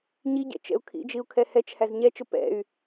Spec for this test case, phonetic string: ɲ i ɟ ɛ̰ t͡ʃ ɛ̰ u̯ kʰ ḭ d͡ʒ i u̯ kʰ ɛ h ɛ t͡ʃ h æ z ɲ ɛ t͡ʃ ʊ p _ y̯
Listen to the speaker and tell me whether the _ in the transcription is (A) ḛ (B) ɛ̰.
B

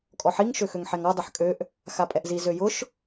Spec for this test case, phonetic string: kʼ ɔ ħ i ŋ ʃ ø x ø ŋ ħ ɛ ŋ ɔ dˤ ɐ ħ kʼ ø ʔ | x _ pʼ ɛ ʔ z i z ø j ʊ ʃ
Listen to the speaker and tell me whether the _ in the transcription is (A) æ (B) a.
B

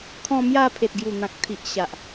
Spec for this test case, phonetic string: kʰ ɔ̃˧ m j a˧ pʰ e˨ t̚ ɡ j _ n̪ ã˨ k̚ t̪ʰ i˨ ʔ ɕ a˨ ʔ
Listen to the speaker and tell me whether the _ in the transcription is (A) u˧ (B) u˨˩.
B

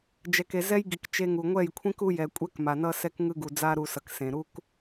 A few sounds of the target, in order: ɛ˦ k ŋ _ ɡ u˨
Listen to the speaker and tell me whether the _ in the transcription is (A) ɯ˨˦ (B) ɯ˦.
B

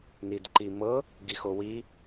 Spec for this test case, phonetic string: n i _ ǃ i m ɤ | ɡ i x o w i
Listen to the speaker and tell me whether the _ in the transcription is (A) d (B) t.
A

